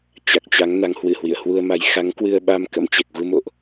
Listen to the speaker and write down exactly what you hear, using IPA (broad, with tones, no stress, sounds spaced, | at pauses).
t͡ɕ a˨˩ k̚ t͡ɕ a˨˦ ŋ n a˨˦ ŋ h w ɨ˧˩ h w ḭ˧˨ ə̯ h w u˧ ə̯ m a˨˦ j x a˨˦ ŋ k w ɨ˧ ə̯ ɓ a˧ m k ə̰˧˥ m t͡ɕ ɛ˨˩ k̚ ɣ u˧ m o̰˧˨ ʔ